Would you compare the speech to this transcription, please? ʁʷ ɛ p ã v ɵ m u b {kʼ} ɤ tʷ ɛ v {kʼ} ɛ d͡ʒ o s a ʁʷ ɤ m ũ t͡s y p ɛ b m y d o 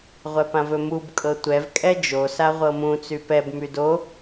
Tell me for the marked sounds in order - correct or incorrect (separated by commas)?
correct, correct